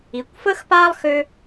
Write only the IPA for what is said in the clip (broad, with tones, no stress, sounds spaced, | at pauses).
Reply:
i˨ kʷ f əː˦ x p aː˦ lˠ x ø˦